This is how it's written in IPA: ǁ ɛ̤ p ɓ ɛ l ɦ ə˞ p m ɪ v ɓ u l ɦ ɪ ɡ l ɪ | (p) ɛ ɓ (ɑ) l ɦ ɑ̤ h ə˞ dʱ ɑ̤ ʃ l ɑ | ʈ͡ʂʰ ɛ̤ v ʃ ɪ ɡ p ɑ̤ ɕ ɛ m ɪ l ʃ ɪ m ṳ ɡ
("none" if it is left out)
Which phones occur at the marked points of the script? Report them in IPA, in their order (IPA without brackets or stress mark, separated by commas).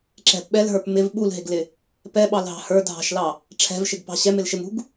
p, ɑ